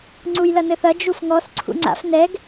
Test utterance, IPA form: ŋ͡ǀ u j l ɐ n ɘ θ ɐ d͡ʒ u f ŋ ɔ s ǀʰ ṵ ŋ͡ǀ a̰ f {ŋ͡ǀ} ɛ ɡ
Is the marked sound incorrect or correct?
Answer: incorrect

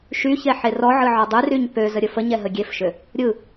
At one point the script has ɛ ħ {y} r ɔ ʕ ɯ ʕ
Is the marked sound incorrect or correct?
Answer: incorrect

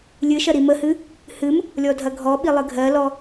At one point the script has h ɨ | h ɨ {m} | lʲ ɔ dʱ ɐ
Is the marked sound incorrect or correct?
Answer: correct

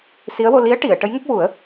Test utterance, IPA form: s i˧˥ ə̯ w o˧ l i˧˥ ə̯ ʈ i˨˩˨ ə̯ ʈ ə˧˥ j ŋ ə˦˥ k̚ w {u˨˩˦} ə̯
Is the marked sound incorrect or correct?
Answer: correct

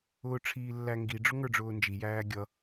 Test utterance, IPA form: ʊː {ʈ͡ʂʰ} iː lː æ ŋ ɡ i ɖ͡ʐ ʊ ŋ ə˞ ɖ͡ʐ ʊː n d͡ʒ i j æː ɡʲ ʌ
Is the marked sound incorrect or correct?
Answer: correct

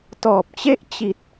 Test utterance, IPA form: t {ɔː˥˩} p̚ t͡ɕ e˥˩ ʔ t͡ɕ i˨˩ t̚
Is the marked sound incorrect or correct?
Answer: incorrect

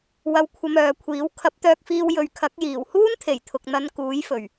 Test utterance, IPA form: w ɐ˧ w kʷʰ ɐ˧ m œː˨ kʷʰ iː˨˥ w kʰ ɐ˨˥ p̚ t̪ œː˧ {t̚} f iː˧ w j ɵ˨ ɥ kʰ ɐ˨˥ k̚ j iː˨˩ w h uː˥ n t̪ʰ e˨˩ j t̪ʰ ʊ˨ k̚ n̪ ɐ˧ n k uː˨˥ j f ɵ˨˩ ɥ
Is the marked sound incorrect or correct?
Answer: incorrect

